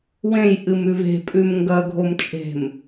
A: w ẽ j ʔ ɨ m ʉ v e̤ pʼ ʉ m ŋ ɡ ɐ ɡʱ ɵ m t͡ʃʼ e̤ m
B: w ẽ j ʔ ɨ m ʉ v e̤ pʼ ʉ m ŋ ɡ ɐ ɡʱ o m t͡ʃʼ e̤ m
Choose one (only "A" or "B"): B